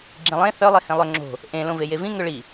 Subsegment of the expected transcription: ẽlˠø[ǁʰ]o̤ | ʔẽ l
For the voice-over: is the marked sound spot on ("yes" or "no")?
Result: no